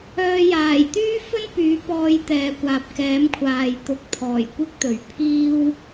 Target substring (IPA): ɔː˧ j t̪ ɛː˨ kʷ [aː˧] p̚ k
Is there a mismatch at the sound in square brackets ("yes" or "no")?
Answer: yes